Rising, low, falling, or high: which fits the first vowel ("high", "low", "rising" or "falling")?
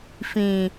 low